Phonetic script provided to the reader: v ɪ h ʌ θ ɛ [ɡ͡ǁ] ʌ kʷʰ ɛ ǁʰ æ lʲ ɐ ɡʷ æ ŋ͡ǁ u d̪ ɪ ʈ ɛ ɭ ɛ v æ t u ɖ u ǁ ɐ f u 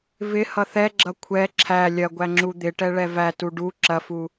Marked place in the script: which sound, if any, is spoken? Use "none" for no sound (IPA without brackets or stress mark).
ɡ͡ǁ